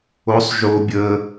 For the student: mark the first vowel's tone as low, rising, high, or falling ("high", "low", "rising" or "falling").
rising